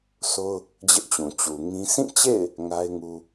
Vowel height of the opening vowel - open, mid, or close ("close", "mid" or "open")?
mid